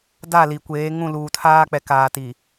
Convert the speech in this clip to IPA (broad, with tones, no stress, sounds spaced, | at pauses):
d a˦˨ l i˨ kʷ eː˨˦ ŋ ũ˦˨ l uː˨ tʰ aː˦ k͡p ɛ˨ k aː˨ t i˨